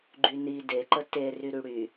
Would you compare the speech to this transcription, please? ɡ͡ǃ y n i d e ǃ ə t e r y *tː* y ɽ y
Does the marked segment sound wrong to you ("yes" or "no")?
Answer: yes